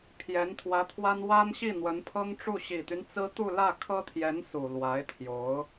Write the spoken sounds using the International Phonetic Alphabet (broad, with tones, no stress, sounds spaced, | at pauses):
pʰ j ɛ˧˥ n t̪ʰ w ä˧˥ t̪ʰ w a˥ n w a˥ n ɕ i˥˩ n̪ w ə˧˥ n pʰ ɤ˥ ŋ ʈ͡ʂ u˥˩ ɕ i˨˩ t̪ y˦ n t͡s ɹ̩˥ t̪ u˥˧ l ä˥˩ kʰ ɤ˥ t̪ʰ j ɛ˧˥ n s u˨˩ l w a˧˥ ɪ̯ t̪ʰ j o˧˥ ʊ̯